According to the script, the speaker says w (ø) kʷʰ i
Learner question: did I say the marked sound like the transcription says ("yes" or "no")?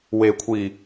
no